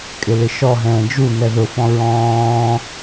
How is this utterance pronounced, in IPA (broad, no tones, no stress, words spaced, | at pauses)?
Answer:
kʼɪlɪʃɔ ɦɛ̃ːd͡ʒu nɛðʊfɔ̃ ɹɔ̃ː